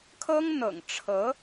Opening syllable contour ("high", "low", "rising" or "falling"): high